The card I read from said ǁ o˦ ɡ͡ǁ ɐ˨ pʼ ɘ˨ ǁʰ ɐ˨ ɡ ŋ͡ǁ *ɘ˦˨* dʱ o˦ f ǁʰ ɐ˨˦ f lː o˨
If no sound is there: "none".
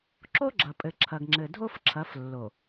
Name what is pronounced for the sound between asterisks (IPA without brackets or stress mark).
ɘ˨